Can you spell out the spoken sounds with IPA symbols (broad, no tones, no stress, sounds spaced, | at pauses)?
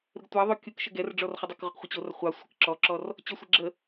ɾ ə ɡ tʷ ɑ ðˤ o kʲ u k ʃ ə ɡ ɛ r ɖ͡ʐ ɔ r χ ɔ dˤ ɑ k ʁ u q χʷ ə t͡ɕ o r χʷ ɑ sʷ ə k ǁ ɔ ǁ ɔ r | t͡ɕ ɔ sʷ ɛ ɡ͡ǁ ə